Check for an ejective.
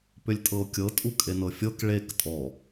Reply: present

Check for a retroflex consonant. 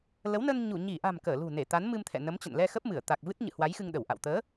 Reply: absent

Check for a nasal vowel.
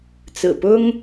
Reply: absent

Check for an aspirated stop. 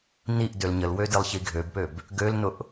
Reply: absent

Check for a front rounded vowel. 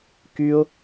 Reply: present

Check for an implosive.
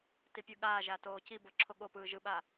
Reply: present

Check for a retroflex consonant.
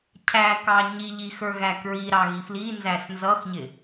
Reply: absent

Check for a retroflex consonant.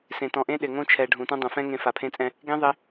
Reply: present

